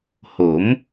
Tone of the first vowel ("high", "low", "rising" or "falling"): rising